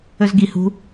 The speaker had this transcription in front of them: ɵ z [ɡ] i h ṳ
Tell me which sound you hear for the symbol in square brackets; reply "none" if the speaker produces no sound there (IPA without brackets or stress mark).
ɡ